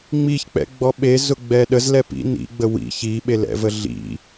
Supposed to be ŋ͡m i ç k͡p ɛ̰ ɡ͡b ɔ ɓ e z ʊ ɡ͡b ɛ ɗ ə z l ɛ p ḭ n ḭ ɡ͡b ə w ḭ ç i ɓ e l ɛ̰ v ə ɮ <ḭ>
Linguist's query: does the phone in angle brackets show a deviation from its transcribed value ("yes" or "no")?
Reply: no